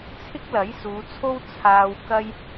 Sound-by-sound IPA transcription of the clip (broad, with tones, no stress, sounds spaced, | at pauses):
t͡sʰ ɪ˥ k̚ l ɐ˨˥ j s uː˨˧ t͡sʰ o˥ w t͡sʰ aː˧ w k ɐ˥ j